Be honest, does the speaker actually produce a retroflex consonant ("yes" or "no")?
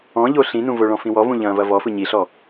yes